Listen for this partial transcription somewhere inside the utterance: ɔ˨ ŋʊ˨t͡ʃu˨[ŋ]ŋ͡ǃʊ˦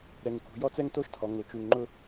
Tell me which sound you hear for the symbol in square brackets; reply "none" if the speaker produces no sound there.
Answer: ŋ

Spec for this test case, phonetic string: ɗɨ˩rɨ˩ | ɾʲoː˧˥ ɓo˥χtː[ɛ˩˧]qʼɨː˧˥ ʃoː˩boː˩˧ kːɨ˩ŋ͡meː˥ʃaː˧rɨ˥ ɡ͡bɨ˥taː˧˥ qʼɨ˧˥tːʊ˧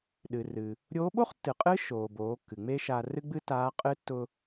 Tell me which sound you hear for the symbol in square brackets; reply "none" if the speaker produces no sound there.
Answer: ɨ˩˧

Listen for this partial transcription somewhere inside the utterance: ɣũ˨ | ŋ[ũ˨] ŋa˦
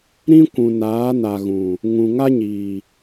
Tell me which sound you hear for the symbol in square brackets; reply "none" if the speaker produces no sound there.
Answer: ũ˨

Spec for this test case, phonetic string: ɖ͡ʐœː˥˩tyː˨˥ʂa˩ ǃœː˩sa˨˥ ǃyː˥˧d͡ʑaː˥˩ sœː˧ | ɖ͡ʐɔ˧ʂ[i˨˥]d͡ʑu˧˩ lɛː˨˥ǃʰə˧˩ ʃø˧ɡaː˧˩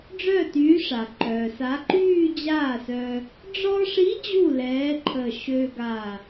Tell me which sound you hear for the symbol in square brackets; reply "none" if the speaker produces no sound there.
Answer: i˨˥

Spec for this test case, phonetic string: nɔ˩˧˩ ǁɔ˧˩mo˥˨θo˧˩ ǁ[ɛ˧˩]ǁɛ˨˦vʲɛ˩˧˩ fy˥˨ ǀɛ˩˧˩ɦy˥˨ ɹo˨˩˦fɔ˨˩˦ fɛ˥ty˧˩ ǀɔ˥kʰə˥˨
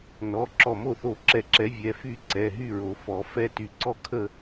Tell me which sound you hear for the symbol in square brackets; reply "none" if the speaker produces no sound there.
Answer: ɛ˧˩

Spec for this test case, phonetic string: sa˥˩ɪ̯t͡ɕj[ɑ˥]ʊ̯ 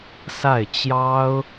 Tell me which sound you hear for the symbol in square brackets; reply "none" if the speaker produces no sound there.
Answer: ɑ˥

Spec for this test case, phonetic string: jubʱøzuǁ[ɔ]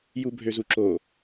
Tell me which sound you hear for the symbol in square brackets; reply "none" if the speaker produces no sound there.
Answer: o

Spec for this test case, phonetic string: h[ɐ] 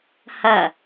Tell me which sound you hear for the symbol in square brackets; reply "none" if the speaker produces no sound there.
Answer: ɐ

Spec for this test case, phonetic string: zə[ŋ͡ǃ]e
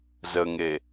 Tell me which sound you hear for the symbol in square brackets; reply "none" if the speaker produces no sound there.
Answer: ŋ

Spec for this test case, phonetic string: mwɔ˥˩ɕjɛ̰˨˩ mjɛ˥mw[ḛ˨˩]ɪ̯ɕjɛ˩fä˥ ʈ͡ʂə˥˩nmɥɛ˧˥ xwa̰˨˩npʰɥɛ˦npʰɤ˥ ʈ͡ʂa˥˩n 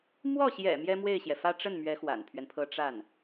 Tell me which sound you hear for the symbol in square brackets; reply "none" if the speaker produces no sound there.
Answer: e˥˩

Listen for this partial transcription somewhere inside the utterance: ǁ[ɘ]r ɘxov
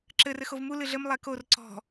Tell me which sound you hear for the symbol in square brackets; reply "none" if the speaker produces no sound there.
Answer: ɘ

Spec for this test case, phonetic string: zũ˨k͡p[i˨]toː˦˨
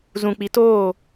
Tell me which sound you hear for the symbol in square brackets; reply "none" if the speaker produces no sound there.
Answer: i˨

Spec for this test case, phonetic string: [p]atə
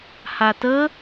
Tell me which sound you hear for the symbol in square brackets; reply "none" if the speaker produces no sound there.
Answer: h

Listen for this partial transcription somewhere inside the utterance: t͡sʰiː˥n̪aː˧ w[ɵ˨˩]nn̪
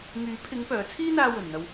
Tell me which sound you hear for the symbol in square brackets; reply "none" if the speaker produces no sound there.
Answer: ɵ˨˩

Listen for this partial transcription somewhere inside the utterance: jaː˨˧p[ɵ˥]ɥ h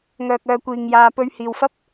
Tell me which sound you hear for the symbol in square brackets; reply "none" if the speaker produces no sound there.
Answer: ɵ˧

